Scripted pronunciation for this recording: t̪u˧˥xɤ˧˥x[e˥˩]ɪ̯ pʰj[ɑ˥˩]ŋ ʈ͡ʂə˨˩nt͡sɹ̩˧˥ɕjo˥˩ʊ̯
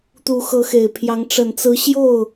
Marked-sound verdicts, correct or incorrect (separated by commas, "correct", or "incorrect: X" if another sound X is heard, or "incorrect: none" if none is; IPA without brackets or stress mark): incorrect: e˨˩, incorrect: ɑ˧˥